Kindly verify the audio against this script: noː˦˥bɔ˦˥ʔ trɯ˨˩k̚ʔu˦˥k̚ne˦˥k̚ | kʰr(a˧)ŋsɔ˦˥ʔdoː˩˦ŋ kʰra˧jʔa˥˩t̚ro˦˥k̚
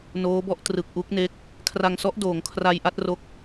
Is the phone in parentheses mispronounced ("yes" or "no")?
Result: no